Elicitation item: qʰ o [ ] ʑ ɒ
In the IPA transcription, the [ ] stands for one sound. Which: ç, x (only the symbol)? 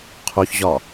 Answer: ç